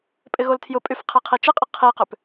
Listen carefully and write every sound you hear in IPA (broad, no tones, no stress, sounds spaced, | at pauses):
pʼ ɪ ɣ o l tʰ j ʊ pʼ y f qʰ e qʰ i t͡ʃ ɪ qʼ ɪ qʰ i q ʏ p